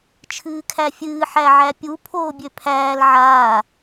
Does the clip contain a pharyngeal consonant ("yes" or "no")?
yes